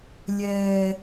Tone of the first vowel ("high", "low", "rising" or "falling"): high